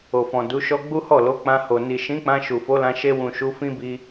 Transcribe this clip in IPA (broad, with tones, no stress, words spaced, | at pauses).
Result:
o˨fɔ̃˨du˨˦ʃɔ˦ ɡ͡bu˦hɔ˦˨lo˨˦ k͡pã˧ho˨ni˨ ʃĩ˨˦k͡pã˧ ʃu˨fo˨˦lã˧ ʃe˧wũ˨ ʃu˨˦fĩ˦bi˧